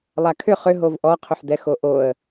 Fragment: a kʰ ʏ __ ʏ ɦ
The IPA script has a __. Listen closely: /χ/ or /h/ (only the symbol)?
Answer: χ